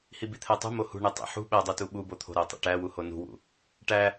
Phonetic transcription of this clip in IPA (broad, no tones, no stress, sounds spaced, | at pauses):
h i b i t̪ʰ æ tˤ ṳ m o h ṳ ɳ e tˤ ḛ ħ ṳ ɓ æ dˤ o t u ɓ u b o t̪ʰ o̤ ɾ æ tˤ ḛ ʈ æ w u h o n ṳ w ṵ | ʈ æ